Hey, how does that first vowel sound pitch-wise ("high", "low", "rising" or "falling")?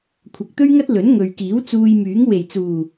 low